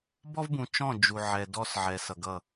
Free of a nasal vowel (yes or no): no